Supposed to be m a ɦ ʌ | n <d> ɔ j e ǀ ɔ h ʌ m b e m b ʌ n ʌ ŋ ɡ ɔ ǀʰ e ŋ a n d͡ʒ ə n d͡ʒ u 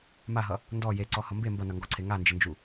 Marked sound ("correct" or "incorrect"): correct